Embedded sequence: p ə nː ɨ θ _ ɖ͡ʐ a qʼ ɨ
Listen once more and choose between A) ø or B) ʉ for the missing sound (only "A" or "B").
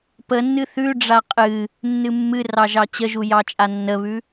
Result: B